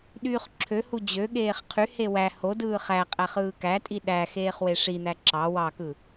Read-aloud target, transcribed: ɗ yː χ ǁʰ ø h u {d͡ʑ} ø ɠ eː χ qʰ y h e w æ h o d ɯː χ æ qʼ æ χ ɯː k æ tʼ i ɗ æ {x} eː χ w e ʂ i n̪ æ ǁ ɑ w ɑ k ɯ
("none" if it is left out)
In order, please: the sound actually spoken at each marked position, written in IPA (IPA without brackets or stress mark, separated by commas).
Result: d͡ʑ, x